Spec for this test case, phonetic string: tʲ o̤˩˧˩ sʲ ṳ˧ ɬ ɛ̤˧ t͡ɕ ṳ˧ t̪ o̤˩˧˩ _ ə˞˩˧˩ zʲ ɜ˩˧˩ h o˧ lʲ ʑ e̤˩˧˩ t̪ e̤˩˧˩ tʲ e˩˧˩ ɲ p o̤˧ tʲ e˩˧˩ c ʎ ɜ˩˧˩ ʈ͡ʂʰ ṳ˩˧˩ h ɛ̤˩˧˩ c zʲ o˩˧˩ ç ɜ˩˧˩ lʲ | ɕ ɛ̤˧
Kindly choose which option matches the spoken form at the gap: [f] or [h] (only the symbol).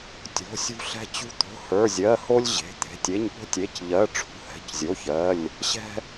h